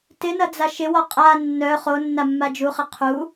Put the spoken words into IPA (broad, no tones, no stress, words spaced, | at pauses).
tɪnɐd͡za ʃɪwɔ qʼa nːœ χonːamːa d͡ʒuχɪ qʰu